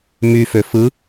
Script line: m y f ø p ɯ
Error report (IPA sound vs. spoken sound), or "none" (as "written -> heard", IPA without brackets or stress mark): p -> f